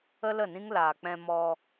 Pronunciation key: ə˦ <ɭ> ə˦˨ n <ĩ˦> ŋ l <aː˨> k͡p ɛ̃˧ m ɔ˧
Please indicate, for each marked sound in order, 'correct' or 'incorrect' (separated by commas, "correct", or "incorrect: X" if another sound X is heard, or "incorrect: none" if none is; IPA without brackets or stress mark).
incorrect: l, correct, correct